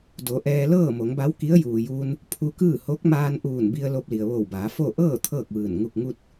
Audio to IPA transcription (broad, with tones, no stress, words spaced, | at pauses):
do˩˧ʔɛː˧ lɤː˥˨mo˩˧ŋba˧˥w ki˧˥ə̯juː˩juː˧n | pʰu˧kɯː˥˨ ho˧˥k̚maː˧nʔuː˧˩nbi˧ə̯ lo˧p̚li˩ə̯ʋo˧˩wbaː˩˧ fo˥˨ ʔɤː˥˨ t̪ʰɤː˥˨k̚ʋɯː˧˩n ŋu˧˩k̚ŋu˧t̚